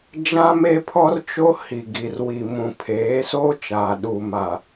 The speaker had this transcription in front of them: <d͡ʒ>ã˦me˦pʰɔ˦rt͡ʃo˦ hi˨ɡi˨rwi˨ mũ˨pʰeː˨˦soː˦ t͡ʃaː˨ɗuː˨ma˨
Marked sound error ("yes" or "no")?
no